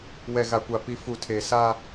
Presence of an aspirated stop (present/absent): present